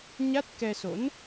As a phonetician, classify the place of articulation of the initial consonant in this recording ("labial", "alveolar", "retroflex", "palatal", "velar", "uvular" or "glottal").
palatal